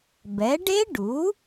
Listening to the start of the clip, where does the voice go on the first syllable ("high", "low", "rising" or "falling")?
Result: rising